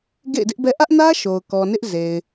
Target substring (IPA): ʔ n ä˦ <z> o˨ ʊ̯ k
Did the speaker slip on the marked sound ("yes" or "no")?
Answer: yes